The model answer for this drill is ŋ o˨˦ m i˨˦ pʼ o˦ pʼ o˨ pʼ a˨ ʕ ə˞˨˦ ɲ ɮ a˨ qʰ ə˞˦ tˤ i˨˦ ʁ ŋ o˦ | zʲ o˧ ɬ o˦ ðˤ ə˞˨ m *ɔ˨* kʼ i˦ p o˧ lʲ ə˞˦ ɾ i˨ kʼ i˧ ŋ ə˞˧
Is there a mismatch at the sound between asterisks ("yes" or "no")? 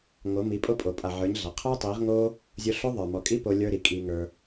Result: no